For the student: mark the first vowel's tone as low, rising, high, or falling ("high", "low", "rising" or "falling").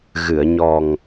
low